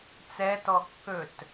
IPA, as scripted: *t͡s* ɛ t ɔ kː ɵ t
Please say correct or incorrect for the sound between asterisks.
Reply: correct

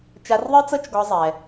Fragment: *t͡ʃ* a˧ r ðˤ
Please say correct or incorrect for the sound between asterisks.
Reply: correct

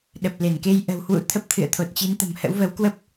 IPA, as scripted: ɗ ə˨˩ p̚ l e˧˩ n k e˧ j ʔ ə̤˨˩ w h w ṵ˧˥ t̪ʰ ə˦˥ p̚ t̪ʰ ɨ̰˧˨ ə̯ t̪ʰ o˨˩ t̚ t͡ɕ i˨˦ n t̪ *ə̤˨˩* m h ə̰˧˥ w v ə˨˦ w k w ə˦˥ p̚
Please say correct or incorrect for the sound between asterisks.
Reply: correct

